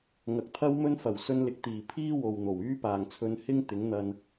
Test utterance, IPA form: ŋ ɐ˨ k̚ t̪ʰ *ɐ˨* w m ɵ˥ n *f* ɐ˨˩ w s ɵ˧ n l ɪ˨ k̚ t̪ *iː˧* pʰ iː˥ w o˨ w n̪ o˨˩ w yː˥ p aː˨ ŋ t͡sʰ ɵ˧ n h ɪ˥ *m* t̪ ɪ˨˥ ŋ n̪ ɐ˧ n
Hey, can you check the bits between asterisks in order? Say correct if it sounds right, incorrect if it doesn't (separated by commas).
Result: incorrect, correct, incorrect, incorrect